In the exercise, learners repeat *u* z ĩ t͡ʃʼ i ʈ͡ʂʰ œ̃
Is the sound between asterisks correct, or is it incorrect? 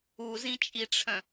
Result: correct